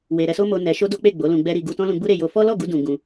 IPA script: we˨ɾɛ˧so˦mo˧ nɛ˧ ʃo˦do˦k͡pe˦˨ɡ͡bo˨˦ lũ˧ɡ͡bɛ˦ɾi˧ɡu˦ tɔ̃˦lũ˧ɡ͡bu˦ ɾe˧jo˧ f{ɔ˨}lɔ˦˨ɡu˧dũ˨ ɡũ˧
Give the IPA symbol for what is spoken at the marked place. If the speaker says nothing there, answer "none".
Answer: ɔ˦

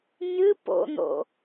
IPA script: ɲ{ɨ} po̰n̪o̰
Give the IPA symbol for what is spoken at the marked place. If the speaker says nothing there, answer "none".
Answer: ɨ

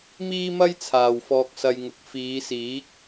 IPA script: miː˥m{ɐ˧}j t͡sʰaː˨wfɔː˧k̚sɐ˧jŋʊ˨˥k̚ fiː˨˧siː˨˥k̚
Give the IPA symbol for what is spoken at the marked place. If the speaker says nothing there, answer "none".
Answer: ɐ˥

